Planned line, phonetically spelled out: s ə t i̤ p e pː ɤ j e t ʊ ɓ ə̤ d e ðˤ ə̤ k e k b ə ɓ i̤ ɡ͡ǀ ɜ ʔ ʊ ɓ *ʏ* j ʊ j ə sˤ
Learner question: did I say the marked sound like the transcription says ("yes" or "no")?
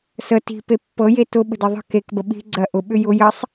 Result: yes